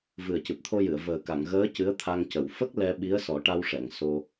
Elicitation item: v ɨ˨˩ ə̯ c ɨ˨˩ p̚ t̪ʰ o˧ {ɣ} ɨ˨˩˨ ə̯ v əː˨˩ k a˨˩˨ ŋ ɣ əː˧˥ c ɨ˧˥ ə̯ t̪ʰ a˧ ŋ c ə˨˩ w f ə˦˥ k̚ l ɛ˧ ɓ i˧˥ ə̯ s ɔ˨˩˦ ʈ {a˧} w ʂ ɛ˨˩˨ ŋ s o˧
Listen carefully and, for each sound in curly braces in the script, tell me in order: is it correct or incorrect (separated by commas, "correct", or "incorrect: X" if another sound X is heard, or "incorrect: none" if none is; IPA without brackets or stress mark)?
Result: incorrect: j, correct